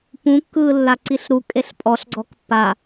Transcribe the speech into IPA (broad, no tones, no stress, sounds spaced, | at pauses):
p ũ kː ɯː lː a ǀ i ɬ ɾ u kʼ e ɬ pʼ ɔ ɬ ɡ͡ǀ ɔ k pː a